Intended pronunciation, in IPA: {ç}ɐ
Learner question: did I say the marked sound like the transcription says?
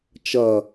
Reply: no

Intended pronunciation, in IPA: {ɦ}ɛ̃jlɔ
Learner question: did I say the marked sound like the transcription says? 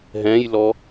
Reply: yes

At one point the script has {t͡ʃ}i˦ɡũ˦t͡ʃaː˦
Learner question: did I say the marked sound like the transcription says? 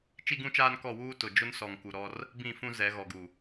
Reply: yes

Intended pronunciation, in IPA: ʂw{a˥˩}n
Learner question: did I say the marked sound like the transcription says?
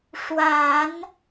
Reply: no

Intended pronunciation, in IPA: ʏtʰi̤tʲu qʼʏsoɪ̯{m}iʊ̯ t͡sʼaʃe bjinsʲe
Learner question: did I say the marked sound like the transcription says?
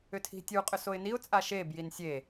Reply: no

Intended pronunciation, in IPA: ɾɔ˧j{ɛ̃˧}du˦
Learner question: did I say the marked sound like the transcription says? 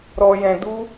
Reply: yes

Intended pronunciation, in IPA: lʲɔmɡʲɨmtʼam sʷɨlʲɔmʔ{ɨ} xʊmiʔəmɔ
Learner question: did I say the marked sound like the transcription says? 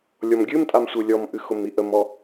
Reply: yes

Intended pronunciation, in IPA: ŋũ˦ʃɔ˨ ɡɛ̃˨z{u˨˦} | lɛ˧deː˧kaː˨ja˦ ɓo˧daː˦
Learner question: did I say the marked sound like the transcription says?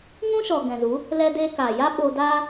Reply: yes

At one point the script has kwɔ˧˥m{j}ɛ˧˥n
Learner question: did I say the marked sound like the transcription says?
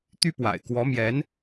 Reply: yes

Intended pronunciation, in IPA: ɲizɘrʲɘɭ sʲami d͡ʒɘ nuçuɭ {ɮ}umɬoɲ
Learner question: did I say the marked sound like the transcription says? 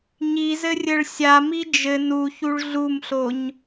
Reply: yes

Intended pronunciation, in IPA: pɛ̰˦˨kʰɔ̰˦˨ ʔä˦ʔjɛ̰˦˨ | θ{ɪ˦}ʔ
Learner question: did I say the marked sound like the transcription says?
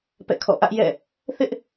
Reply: yes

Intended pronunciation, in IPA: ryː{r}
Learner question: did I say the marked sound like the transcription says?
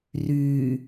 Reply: no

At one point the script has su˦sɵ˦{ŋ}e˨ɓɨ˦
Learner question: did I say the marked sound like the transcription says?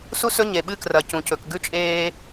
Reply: no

